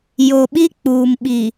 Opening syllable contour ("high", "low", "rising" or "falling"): low